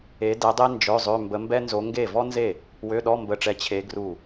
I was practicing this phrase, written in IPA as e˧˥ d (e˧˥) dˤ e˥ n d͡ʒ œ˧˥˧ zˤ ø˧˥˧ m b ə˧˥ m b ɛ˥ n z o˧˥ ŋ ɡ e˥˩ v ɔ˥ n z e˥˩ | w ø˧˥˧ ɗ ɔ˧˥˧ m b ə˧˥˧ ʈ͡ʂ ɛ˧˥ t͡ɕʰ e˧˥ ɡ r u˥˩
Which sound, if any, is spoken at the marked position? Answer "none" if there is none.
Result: ɛ˧˥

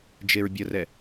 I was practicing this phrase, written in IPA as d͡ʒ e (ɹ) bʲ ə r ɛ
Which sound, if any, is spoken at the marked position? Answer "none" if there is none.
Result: ɹ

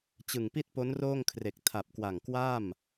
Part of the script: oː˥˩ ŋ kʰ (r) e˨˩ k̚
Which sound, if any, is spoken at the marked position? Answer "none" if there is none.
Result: r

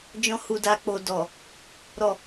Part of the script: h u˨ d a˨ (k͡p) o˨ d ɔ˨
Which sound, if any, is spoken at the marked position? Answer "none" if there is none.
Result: k͡p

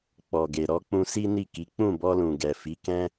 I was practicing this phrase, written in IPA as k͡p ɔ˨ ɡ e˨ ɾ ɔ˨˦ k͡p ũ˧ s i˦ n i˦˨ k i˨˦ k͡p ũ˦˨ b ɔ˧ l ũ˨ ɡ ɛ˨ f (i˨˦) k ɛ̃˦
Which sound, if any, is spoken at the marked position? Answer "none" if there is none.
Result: i˨˦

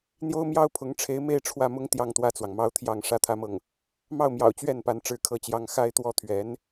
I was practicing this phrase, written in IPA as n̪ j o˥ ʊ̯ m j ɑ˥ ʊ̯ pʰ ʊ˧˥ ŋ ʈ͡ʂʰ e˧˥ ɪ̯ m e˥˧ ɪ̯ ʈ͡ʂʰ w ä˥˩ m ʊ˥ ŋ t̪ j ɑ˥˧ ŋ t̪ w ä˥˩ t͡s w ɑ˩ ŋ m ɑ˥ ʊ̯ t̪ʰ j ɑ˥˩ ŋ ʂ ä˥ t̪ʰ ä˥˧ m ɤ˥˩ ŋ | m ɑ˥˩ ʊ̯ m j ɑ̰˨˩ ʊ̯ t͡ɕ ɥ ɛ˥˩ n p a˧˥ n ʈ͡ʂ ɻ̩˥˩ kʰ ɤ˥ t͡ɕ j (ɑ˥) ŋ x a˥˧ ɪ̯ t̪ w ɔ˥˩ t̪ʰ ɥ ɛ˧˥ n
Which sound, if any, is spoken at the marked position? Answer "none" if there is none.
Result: ɑ˥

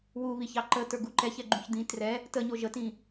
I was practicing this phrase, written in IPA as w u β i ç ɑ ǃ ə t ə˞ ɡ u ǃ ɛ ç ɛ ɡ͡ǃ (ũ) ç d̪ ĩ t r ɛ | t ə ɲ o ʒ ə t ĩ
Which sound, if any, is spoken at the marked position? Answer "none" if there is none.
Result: ũ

